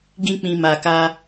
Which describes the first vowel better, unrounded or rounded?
unrounded